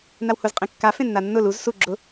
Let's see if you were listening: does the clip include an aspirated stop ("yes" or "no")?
no